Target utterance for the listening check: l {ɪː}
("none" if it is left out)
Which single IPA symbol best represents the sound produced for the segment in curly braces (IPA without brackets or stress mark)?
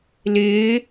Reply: ɪː